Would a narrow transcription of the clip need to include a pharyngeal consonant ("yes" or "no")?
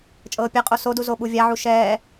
yes